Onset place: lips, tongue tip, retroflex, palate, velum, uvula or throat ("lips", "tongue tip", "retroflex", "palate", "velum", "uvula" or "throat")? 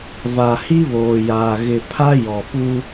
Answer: lips